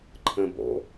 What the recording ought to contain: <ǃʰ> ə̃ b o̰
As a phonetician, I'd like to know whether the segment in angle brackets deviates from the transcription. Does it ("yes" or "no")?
no